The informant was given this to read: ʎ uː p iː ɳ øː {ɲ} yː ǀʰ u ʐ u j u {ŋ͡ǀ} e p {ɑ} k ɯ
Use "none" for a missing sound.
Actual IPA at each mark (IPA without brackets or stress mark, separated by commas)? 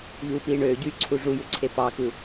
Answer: ɟ, ǀʰ, ɑ